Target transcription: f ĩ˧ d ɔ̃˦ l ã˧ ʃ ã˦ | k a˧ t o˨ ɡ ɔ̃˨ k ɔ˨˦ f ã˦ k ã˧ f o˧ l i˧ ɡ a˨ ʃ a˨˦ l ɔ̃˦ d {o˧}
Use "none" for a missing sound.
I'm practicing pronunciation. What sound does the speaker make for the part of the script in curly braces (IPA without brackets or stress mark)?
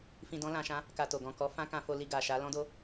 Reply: o˦